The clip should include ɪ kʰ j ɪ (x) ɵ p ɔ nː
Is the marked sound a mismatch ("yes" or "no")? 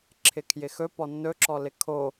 no